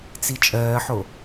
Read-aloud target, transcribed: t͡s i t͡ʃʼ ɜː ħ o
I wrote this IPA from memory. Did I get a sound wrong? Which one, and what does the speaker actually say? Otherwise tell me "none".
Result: none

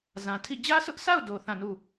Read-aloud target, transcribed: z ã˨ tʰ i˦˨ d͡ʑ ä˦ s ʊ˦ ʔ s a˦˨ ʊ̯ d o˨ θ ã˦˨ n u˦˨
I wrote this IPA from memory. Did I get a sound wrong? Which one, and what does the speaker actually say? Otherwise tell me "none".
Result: none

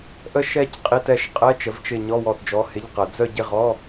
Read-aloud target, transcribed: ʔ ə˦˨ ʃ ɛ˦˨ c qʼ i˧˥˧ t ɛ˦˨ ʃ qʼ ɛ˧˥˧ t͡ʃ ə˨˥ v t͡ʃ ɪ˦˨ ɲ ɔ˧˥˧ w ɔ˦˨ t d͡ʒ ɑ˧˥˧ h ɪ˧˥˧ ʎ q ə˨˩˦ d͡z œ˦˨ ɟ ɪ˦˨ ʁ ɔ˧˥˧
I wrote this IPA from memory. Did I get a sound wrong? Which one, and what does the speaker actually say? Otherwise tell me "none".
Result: ɑ˧˥˧ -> ɔ˧˥˧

